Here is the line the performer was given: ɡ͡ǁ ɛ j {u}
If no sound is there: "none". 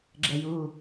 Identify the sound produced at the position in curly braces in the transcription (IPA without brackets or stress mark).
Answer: u